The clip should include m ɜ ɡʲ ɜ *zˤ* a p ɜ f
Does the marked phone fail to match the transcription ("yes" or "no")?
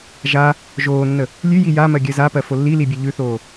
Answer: yes